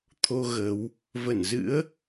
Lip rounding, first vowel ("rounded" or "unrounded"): rounded